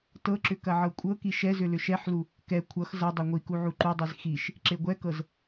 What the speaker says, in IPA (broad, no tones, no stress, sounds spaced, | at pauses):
t ɤ ǁ ʏ k ɐ ʕ ɤ kʷʼ ɤ k i ʃ ɛ z ʏ l ʏ ʃ ɛ ħ l u | k ɛ kʷʰ ʌ x z ʌ dˤ ɛ ŋʷ i k u ʕ u ǃ u dˤ i z x i ʃ | ǁ e ɡʷ ɛ k ɤ z